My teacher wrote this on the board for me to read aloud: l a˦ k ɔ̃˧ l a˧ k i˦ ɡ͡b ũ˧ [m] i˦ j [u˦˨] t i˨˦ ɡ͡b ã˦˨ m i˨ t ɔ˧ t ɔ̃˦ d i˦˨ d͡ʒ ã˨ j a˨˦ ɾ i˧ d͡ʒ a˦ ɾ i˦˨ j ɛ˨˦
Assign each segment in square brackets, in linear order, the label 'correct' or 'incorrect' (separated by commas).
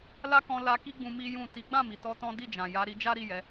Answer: correct, incorrect